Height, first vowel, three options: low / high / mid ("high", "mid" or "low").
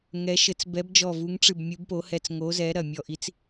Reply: mid